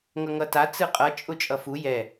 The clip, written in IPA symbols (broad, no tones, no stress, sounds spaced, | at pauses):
ŋ ʌ ŋ ʌ t a t͡s ɯ qʼ ʌ t͡ʃʼ ʊ t͡ʃʼ ʌ f u j ɛ